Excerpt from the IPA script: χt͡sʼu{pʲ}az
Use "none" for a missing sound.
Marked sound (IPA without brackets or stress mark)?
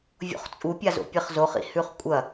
pʲ